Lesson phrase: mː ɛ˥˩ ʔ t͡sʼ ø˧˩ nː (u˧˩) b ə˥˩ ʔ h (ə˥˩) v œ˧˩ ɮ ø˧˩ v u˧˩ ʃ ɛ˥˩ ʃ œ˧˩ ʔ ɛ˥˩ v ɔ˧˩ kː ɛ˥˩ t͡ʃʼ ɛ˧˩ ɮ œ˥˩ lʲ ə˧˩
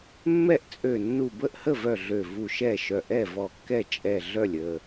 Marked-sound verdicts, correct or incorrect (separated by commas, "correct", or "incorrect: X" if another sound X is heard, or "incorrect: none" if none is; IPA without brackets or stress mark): correct, correct